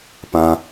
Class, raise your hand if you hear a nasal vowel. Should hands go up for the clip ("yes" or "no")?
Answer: yes